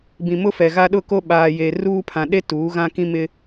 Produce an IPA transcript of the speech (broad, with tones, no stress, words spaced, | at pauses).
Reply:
bĩ˨mʊ˦fɛ˨ɣa˦ ɗʊ˦˨ko˦ ɓaː˨je˨ ruː˦ pʰã˨ɗe˦ tuː˨˦ɣã˦kĩ˦mɪ˦